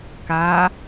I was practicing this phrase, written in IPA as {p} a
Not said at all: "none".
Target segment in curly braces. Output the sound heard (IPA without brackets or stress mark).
k